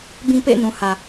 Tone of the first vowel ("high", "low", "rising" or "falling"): high